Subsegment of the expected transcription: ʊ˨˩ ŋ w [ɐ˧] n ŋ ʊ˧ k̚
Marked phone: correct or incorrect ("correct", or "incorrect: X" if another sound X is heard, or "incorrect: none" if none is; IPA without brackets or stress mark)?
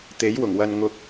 correct